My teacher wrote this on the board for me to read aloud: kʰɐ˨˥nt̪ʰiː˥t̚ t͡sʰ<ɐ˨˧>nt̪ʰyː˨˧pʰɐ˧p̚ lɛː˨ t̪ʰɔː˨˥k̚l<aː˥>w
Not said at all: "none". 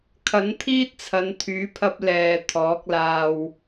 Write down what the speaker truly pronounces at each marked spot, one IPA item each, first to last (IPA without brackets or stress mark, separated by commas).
ɐ˨˧, aː˧